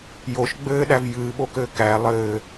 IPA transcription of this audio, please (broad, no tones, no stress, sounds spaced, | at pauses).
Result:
j o ʃ ɡ͡b ɘː ɗ æ v j ɨː ɓ o k ɘː k æ lˠ ɘː